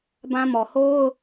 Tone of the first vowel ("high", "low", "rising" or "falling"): high